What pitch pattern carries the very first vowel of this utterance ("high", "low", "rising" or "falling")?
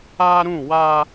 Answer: high